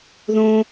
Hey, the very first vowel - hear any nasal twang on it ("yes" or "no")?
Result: yes